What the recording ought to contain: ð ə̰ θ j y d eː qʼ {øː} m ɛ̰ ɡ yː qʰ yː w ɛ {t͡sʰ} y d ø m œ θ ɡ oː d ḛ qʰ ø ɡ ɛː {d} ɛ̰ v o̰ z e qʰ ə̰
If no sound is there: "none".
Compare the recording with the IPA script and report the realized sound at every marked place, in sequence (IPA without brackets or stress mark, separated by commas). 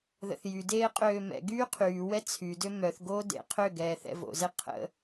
øː, t͡sʰ, θ